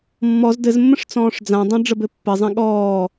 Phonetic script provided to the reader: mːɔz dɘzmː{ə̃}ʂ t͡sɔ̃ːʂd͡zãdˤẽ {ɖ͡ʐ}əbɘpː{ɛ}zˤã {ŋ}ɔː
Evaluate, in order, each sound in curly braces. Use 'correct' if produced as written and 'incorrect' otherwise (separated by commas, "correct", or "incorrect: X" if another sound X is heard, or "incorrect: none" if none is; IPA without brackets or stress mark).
correct, correct, incorrect: ɘ, incorrect: ɠ